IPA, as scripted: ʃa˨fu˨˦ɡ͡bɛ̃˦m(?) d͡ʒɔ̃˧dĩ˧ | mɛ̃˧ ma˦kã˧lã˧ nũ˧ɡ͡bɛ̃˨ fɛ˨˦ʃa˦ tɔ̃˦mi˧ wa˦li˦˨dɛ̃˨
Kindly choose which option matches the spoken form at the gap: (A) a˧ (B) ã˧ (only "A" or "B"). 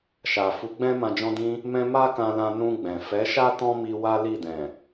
B